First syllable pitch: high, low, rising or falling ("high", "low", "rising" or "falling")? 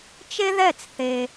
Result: high